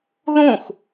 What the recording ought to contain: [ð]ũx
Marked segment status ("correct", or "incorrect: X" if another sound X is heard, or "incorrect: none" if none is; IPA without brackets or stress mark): correct